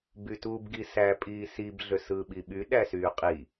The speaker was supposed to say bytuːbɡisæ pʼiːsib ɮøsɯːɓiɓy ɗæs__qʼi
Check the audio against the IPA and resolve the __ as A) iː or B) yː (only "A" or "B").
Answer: B